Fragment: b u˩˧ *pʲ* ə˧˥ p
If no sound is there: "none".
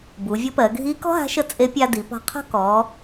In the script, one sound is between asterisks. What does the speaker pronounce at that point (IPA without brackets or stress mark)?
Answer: vʲ